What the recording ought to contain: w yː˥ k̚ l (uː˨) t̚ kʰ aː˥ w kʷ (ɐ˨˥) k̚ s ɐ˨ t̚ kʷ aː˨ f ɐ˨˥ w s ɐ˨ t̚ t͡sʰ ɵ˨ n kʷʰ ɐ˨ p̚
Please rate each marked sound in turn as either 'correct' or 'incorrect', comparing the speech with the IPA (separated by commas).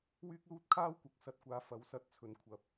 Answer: incorrect, correct